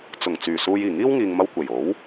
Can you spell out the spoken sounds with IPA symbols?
t͡sʊ˨˩ŋ t͡syː˨˩suː˧j iː˨˩ŋiː˥wŋiː˨ŋmɐ˧w kʷe˨˩jo˨˥w

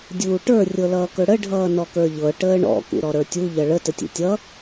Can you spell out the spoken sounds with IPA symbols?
dʲuːʈə˞ rʲɤlʌːkɵɽə ɖʱʌːnɔkə˞ʎɤ ʈəːɳɔ̰ kṵɾɔɾə˞tʲu ʎʌɭə tətʲṵtʲʌ

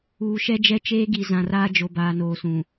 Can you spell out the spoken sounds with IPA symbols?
uː˨ʃɛ˦ d͡ʒɛ˦t͡ʃeː˦ɡi˨ zã˨raː˦d͡ʒo˨ baː˨noː˨sũ˨

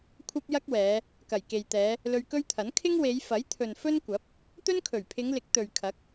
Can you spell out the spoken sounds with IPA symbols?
kʷʰɐ˥p̚jɐ˥k̚wɛː˨˧ | kɐ˨˩jke˨jt̪ɛː˨˧ | lɵ˧ɥkɵ˥ɥt̪ʰɐ˨˥n kʰɪ˥ŋwe˨˧jfɐ˨˥jt̪ʰɵ˨n fɵ˥n kʷɐ˨˥p̚ | t̪ɵ˥nkʰɵ˨˩ɥpʰɪ˨˧ŋlɪ˨˥k̚ t̪ɵ˨ɥkʰɐ˨˥k̚

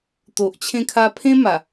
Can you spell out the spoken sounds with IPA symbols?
t̪o˨ʔt͡ɕʰẽ˧kʰa˧ pʰẽ˦ma˨˩

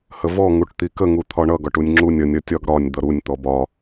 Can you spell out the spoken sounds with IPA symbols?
həvɔ ŋuʈt̪ikə ŋut̪ʰɒɳʌ ɡɒʈunʲŋ͡ǁunʲ ʌnʲ ʌtʲɒɡɾɒnʲ d̪ʌɾunʲ t̪ɔbɒ

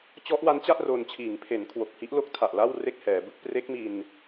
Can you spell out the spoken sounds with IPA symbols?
t͡ɕɔ˦˥ʔwa˦˥nt͡ɕa˥˩ʔ ro˧n t͡ɕʰiː˩˦ŋpʰe˩˦nkʰwo˨˩k̚hi˦˥ʔ lo˦˥k̚tʰa˨˩ʔ la˥˩w re˥˩k̚hɛː˩˦bɯ˦˥k̚ pre˦˥k̚mi˧n

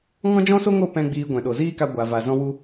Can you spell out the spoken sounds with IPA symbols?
ŋɔ̃˦d͡ʒɔ̃˦so˦ŋo˦˨ pɛ̃˦ɡ͡biː˧ɡʷɛ̃˨ ɗo˨ziː˦ka˧ ɡʷa˨va˨ zɔ̃˧wu˧

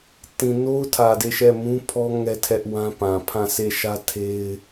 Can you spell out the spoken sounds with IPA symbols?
tĩ˨no˦ʊ̯tʰä˨ de˦˨ʃɛ˦˨ mũ˦pʰɔ˦ ŋɛ˦tʰɛ˦ʔwã˦pã˨ pʰã˦˨se˦˨ʃä˦ tʰe˦ɪ̯

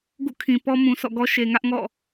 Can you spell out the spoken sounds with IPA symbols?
ɡṵ˦˨kʰĩ˨ pɔ˦ mũ˨ sʰɔ̰˦˨ɡɔ˦ ʃe˨ŋä˦ʔŋɔ̰˦˨

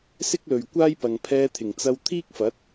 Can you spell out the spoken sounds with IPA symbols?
sɪ˥k̚lɵ˨ɥ kʷaː˥jpɐ˨ŋ pʰɛː˧t̪ʰɪ˨˩ŋt͡sɐ˧w t̪ʰiː˥k̚fɐ˨˥t̚

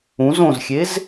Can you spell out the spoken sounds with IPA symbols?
ũz õzxʲez

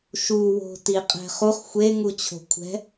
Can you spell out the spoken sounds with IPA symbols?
ʃuwo̤ tiqʼɛ̤χuχ xʷe ŋut͡ɕʰo̤kʷʰɛ̤

